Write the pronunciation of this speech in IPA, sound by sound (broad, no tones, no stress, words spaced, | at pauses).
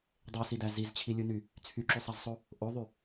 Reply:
dˤesidæ zizt͡ɕʰilʲuny | t͡sʰyǁysˤɑzsˤo | ʔoðˤy